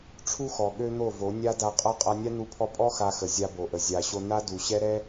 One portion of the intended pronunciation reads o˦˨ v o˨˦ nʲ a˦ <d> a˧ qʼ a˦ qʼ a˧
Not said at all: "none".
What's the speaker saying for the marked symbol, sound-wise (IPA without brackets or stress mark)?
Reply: d